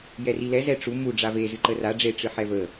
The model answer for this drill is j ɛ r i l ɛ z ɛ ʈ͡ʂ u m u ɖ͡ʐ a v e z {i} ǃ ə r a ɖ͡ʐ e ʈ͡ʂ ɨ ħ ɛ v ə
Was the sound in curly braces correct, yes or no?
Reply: no